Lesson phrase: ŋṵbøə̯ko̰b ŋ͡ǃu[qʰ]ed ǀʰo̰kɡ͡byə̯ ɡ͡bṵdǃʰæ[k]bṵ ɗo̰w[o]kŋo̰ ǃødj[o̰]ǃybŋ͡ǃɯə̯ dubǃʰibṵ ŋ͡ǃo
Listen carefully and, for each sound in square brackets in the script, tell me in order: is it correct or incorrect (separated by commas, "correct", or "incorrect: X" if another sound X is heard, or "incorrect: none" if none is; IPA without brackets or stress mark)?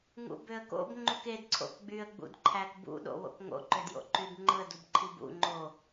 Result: incorrect: k, correct, incorrect: o̰, correct